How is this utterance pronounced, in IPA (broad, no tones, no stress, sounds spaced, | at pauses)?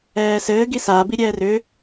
ɛː s ɘː ɡ i s aː b i ɾʲ ɛː r ʏ